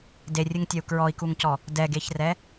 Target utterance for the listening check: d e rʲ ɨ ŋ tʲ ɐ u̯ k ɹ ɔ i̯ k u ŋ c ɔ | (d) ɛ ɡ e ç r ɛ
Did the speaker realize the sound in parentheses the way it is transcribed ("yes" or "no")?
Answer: yes